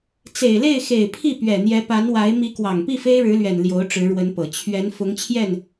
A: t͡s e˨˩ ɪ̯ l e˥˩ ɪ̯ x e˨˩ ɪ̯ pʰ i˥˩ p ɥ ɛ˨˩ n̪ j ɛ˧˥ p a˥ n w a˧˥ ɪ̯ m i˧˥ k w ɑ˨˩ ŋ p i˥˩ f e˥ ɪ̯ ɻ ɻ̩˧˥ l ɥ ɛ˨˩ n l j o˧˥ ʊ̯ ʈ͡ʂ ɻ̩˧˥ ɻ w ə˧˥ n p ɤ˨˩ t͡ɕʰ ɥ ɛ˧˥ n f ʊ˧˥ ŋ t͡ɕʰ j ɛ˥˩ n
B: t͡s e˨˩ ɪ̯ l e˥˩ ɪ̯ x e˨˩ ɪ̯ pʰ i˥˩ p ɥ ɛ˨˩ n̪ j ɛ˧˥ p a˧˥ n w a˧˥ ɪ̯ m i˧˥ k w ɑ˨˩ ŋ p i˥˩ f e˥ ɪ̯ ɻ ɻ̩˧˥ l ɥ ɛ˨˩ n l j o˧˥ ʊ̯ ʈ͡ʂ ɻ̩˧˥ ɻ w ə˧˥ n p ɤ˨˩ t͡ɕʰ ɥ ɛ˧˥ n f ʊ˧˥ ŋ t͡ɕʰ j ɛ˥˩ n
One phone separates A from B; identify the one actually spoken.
B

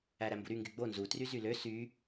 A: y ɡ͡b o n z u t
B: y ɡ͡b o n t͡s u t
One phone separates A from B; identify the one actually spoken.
A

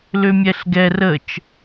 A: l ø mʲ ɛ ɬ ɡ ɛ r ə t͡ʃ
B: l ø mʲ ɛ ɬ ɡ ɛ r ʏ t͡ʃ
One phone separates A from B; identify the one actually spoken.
A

